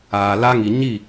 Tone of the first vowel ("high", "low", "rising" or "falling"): low